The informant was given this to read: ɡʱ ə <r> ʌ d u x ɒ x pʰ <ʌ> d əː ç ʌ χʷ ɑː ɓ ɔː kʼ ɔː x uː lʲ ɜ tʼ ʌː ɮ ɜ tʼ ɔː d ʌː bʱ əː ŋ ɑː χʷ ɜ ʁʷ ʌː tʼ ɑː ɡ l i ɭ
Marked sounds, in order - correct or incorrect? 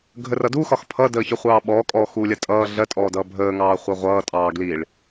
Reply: correct, correct

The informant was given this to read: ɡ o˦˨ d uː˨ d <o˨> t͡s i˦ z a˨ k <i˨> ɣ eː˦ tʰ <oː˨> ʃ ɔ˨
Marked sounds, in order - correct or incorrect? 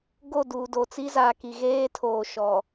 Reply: correct, correct, correct

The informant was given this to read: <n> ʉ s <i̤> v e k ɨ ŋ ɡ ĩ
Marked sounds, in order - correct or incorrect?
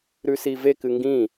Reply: incorrect, incorrect

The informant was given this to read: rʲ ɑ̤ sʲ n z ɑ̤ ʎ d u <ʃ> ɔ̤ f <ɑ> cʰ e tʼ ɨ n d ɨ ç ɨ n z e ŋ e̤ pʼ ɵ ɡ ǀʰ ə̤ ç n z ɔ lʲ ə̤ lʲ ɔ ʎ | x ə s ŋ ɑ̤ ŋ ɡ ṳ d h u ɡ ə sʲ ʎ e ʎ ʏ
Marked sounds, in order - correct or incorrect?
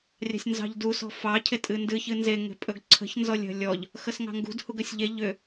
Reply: incorrect, correct

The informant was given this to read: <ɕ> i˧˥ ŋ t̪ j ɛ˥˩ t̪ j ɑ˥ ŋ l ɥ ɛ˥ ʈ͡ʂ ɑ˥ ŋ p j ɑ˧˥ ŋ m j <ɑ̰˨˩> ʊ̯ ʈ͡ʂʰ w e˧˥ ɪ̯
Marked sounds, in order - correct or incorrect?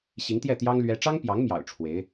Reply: correct, correct

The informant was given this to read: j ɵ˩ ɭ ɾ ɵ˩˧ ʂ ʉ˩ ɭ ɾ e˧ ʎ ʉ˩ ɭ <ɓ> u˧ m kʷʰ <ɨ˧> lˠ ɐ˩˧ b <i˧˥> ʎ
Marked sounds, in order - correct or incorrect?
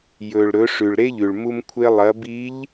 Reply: incorrect, incorrect, correct

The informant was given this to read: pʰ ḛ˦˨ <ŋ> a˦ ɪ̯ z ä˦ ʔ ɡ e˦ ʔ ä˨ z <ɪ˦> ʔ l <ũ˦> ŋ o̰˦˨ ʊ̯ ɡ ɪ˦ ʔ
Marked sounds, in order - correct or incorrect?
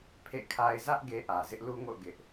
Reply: incorrect, correct, incorrect

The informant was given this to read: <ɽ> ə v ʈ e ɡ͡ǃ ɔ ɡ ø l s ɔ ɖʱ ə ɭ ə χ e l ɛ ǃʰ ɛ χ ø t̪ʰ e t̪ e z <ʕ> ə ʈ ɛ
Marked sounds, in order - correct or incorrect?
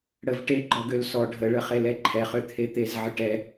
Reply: correct, correct

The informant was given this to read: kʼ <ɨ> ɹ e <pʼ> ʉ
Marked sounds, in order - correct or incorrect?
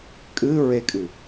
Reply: correct, incorrect

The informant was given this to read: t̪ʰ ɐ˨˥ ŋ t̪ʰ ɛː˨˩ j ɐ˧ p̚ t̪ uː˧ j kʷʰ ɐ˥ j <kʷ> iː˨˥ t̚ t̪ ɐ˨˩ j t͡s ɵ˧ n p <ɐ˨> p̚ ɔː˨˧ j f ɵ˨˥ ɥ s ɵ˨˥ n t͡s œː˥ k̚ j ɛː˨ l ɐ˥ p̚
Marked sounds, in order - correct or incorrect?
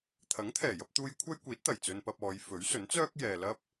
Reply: correct, incorrect

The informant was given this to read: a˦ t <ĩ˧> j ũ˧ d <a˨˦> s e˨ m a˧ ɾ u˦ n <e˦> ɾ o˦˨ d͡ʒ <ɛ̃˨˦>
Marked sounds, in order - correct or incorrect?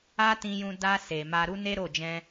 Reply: correct, incorrect, correct, incorrect

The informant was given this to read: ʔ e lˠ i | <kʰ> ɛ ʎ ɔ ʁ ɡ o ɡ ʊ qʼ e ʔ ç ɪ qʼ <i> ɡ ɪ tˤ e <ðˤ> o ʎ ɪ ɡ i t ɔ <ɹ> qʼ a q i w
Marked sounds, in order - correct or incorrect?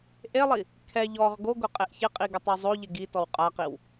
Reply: correct, correct, incorrect, incorrect

